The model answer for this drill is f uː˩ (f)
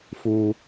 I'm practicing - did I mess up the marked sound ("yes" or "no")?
yes